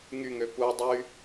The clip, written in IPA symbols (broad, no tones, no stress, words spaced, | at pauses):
ŋyŋø pu dˤy